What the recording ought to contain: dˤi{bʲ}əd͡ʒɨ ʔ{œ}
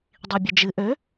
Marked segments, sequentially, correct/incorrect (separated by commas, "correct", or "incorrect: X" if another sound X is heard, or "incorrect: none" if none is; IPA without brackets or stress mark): correct, incorrect: ø